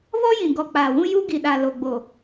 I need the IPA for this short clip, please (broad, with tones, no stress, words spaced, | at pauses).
βɔ˦jĩ˨ɡɔ˨ k͡paː˨wũ˦ ju˦ ɡi˨ɗa˨ lo˨ɡ͡bo˨